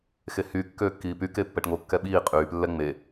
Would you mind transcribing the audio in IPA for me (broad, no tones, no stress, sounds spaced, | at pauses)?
x e h yː kː øː kː iː p y k e pː ɛ ʈ ŋ o kː ɛ ɓ iː qʼ yː p lː ɛ ŋ͡m e